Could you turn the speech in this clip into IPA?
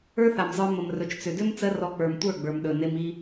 ə˞˦ θ a˨ m zˤ ə˞˧ m ə˨ m r ɵ˨ t͡ʃ t͡s ʏ˨ d ʏ˦ m t͡s ɜ˦ r ɔ˧ k͡p ə˞˨ m tʷ ə˞˦˨ ɡ͡b ə˞˨ m ɗ ɵ˨ n e˧ m i˧

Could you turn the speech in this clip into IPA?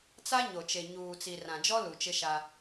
t͡s a˦ ɲ o˨ t͡ʃ e˨ ɲ uː˨ t͡s i˨ r ã˨ d͡ʒ ɔ˦ l u˨ t͡ʃ ɪ˦ ʃ a˦

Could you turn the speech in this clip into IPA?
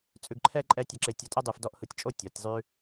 t͡sʼ ʉ˧ ɡ ǃʰ ɛ˦ ǃʼ ɛ˦ tʲ ɛ˧ ǁ e˧ tʲ ɔ˧ tʼ ɛ˦ dˤ ʉ˧ f d ɔ˦ ʔ h ɯ˧ tʲ t͡ʃʼ o˦ tʲ ɔ˨˦ tʲ zˤ ʉ˦

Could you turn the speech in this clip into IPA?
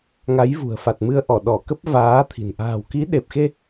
ŋ a˨˦ j v ṳ˨˩ ə̯ f a˨˩ t̚ m ɨ˧ ə̯ ʔ ɔ˧˩ ɗ ɔ˧˩ k ə˦˥ p̚ v aː˨˦ t̪ʰ i̤˨˩ n ʔ a̤ː˨˩ w k i˨˦ ɗ e˨˩ p̚ x e˧

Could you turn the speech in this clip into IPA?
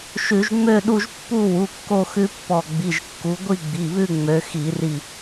ʃ ʉ˧˩˧ ʒ ŋ͡m ø˥˧ ɗ u˥˧ ʒ pː u˥˧ w u˩˧˩ kː o˥˧ x ʉ˦˥ pː ɔ˧˩ ɡ͡b i˩˧˩ ʒ kː u˨˦ ɡʷ i˥˧ ɡ͡b i˩˧˩ β ʉ˥˧ ŋ͡m ø˨˦ x i˧˩˧ r i˧˩

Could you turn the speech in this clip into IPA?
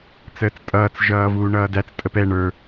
t͡s əː t͡s tʼ ʌː t͡s ʒ ʌː v uː ɳ ʌː d æ t͡s tʼ ə p ɛ ɳ ə˞

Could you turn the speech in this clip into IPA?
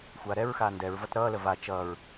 xʷ aː ɾ ɛ ɹ x aː n d ɛ ɹ v ʌ t ɾ ʌː l ə v a t͡ʃ ʌː ɹ

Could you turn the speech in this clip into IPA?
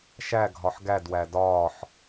ʃ æ ɡʱ ɒ ħ ɡ æ d w æ d ɒː ħ

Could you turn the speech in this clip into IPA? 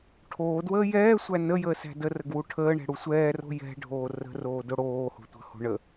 ʈʰ oː d w əː j ɛː sʷ æ n ə j əː s æ̤ d ə r ə ɡ w u ʈʰ əː ɳ ɛ̤ ɽ u sʷ ɛː r o̤ j ɛ̤ ɖʱ oː r ə̤ r oː d o ɽ oː h o̤ tʷ ə̤ h o̤ ɳ ə

